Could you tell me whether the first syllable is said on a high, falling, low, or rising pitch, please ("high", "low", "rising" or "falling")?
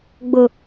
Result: low